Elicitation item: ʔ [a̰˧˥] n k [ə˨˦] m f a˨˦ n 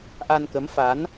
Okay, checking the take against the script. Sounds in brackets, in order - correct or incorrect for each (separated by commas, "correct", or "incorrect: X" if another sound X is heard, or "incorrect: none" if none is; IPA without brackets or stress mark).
incorrect: a˧, correct